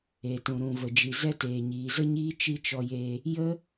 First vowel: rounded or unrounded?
unrounded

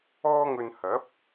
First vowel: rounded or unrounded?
rounded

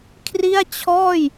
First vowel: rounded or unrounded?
unrounded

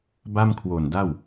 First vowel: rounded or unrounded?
unrounded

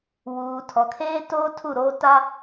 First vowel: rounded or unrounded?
rounded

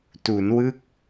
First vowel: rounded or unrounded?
rounded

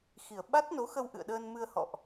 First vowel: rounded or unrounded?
unrounded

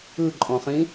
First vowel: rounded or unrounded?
unrounded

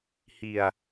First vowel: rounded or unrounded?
unrounded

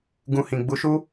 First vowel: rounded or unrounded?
rounded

